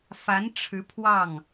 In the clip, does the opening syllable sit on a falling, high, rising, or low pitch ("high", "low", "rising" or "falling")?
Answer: rising